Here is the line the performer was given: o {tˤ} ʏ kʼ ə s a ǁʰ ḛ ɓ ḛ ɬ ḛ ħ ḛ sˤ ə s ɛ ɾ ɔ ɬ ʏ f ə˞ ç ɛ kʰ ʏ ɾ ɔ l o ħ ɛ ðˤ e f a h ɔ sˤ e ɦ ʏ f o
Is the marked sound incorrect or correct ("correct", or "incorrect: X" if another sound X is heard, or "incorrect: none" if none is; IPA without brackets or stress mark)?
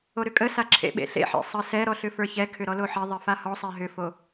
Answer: incorrect: ɾ